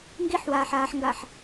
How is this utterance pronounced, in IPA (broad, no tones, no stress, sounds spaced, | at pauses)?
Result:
ŋ ɡ i ħ w aː ħ aː ħ ŋ ɡ a ħ